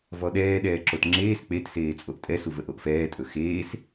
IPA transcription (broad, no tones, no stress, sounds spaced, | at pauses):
v ɔ ɗ ɛː ɗ ɛː ǁ o t ŋ͡ǁ eː s k͡p e t s eː t͡sʼ o ʔ tʼ ɛ s u v ə ʔ o ʔ f ɛː tʼ ɵ x eː s